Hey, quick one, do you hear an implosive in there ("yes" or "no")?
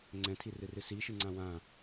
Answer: no